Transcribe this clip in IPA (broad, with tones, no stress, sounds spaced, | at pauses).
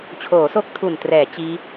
t͡ɕʰ oː˩˦ s o˦˥ k̚ tʰ u˨˩ n t r ɛː˩˦ t͡ɕ iː˦˥